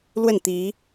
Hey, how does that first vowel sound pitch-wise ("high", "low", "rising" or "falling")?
falling